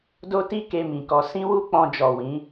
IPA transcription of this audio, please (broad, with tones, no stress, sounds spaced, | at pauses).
d o˦ t i˦ k e˧ m ĩ˨ k ɔ˧ s ĩ˦ w u˦ k͡p ɔ̃˧ d͡ʒ ɔ˨ w ĩ˨˦